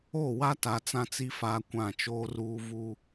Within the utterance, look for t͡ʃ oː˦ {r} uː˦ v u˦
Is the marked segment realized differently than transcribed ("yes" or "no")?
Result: no